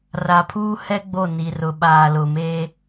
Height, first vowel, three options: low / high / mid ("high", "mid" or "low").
low